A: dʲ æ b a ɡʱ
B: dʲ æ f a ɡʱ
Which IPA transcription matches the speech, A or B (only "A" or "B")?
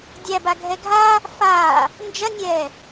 A